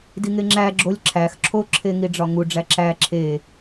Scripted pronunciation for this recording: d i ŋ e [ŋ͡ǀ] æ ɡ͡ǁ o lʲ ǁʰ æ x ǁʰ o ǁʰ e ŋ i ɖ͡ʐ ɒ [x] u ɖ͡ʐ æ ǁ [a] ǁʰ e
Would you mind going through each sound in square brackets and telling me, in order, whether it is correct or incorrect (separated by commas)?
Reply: incorrect, incorrect, incorrect